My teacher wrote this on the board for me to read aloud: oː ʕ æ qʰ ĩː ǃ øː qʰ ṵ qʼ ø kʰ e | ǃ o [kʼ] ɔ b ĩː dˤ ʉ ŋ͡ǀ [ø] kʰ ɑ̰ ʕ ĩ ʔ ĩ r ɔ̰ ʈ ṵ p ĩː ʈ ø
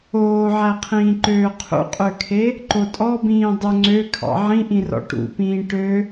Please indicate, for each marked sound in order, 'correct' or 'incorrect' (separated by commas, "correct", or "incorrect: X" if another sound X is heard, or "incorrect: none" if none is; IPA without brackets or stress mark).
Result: incorrect: tʼ, correct